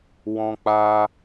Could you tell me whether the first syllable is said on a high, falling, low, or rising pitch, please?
high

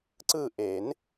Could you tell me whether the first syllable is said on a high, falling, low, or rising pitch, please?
falling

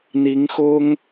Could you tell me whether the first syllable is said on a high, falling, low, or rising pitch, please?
rising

